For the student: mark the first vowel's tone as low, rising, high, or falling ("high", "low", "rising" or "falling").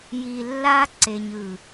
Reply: low